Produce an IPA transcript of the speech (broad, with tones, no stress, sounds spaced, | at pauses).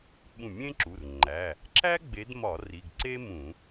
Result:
ɓ ũ˧˩ mʲ ẽ˥ ǁ u˩˧˩ r ŋ͡ǃ æ˩˧˩ | ǁ æ˥ ɡ͡b e˨˦ d m ɒ˧˩˧ r i˩˧˩ ɡ ǀ e˥ m ũ˧˩˧